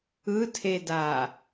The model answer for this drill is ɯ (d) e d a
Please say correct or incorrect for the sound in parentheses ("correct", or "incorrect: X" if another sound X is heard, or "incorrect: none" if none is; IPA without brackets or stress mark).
incorrect: tʰ